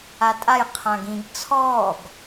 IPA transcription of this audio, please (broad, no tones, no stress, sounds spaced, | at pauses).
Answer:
a tʼ a j qʰ ã ɡ ĩ ɡ t͡sʰ ɔː ɡ